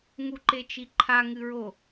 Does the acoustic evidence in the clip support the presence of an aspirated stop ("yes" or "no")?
yes